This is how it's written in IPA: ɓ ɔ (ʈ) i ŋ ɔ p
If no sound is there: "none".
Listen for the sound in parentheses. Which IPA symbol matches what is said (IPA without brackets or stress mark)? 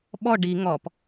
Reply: ɖ